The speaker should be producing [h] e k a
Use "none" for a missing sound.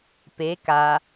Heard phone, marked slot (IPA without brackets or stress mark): p